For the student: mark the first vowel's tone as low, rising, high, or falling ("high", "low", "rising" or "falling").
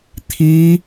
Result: high